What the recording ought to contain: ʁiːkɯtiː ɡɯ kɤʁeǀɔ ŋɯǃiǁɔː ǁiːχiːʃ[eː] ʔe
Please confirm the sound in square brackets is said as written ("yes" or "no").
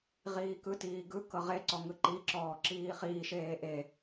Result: yes